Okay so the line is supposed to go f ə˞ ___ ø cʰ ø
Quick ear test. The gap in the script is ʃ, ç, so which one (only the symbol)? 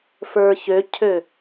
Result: ç